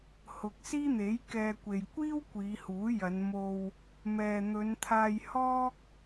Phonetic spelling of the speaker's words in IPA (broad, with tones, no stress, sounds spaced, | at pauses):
h ʊ˨ k̚ s iː˥ n̪ e˨˥ j k ɛː˧ kʷ e˨ j kʷ iː˥ w kʷ iː˨˧ h uː˨˥ j ɐ˨˧ n m o˧ w | m ɛː˨ n̪ ɵ˨˧ n t̪ʰ aː˧ j h ɔː˥ k̚